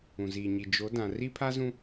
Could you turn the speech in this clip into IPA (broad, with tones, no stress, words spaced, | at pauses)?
ũ˨ziː˨ɲi˨ d͡ʒo˨˦dã˨ ri˦pʰa˦zũ˦